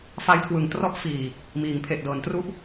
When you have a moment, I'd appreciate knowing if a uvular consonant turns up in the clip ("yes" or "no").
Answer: no